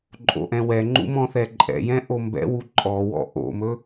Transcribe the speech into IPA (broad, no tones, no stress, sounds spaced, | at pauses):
ǃʼ o̰ ʔ ɛ̃ w ɛ ŋ͡ǃ ṵ m ɔ̃ θ ɛ ǃʼ ɛ̰ j ɛ̃ ʔ o m b ɛ̰ w u ǃʼ ɔ w ɔ̰ ʔ o̰ m ɵ